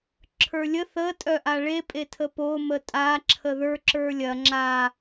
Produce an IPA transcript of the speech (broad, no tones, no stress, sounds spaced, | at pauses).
ǁʰ ə˞ lʲ ə θ ə tʼ œ ʔ a ɭ e pʼ e tʰ ə p o m ə tʼ a ǁʰ ə ð ə˞ ǁ ə˞ lʲ ɐ ŋ͡ǁ a